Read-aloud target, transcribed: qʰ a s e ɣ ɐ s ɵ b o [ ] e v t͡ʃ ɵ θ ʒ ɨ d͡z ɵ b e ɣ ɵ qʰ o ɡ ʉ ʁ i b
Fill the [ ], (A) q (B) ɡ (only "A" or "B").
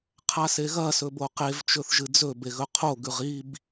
A